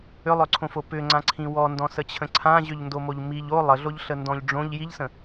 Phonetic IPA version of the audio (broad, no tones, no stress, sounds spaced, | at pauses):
ʏ lˠ œ ǀʰ õ f o p ʏ ŋ͡ǀ ã ǀʰ ĩ w ɔ n d ɔ̃ s ə t͡ɕʰ ə̃ ǀʰ ã ʑ ʏ ʎ n d o m o ʎ m i ʎ o lˠ ə ɮ o ʎ ɬ ə n d ɔ̃ ʎ ɖ͡ʐ õ ʎ j i ʎ s ə̃